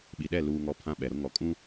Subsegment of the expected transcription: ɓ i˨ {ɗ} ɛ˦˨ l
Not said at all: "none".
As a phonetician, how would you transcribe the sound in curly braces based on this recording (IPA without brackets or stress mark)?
ɗ